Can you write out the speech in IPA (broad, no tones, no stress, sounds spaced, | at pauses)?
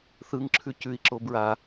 θ ɯ ŋ ǁʰ ʉ c ʉ i̯ ǁ o b ɹ a